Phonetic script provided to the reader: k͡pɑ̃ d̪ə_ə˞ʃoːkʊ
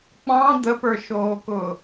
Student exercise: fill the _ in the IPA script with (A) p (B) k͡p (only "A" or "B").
A